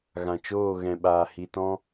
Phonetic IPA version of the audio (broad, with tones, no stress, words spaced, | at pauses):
ɣã˨t͡ʃoː˦˨ ɣɛ̃˨ɓaː˨hi˨ tɔ̃˦